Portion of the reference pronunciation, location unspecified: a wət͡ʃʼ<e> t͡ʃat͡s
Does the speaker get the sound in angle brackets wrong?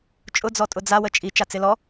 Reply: yes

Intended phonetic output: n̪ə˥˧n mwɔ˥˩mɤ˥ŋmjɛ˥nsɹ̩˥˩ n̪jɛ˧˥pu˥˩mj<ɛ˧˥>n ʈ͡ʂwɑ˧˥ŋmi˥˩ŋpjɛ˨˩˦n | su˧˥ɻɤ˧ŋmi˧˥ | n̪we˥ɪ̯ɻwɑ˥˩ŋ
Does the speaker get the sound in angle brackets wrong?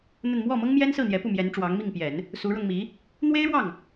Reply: no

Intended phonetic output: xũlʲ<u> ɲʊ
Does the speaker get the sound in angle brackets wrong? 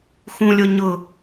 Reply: yes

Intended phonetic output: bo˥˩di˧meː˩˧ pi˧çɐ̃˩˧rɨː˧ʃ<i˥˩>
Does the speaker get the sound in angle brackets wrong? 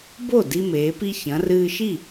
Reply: no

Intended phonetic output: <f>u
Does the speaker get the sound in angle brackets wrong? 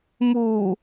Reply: yes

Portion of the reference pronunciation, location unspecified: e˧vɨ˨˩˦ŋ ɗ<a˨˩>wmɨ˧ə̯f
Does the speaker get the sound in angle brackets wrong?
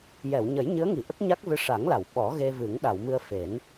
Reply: yes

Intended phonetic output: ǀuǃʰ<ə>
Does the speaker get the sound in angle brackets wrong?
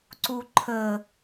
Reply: no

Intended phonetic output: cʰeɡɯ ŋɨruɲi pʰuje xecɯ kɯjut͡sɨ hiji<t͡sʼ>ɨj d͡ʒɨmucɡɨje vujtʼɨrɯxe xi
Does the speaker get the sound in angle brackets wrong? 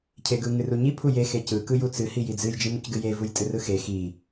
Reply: yes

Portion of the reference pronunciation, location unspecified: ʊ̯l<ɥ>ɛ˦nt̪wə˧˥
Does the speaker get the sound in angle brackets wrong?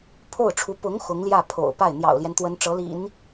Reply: yes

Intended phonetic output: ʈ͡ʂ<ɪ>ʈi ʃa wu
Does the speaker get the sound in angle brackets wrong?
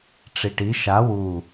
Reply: yes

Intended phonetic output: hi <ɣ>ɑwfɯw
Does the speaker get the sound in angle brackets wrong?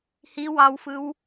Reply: yes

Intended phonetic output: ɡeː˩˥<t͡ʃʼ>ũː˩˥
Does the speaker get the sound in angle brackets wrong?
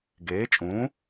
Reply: no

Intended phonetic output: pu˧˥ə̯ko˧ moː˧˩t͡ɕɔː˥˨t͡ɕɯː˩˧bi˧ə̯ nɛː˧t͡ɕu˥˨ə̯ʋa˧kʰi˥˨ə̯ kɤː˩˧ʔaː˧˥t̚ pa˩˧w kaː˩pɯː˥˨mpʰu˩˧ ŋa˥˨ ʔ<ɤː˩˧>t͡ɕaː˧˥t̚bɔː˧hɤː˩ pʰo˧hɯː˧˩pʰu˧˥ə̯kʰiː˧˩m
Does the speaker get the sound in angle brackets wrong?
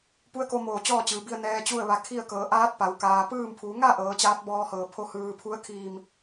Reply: no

